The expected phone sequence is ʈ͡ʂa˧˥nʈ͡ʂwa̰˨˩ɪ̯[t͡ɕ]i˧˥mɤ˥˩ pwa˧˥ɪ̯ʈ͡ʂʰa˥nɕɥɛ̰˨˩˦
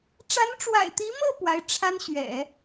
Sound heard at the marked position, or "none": t̪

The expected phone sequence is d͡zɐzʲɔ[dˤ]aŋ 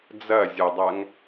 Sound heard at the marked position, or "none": dˤ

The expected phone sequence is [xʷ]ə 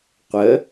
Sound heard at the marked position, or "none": qʷ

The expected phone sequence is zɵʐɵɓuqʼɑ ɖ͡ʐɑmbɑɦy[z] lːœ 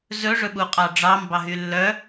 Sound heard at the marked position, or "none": none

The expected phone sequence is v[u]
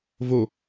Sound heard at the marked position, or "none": o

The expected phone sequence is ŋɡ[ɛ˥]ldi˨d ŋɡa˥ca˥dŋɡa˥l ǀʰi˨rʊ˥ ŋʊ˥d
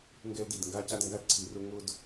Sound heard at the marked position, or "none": ɛ˥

